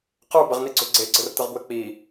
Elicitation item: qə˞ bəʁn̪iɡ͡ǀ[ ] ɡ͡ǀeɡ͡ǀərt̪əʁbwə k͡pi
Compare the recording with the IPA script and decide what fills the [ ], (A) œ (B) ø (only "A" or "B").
B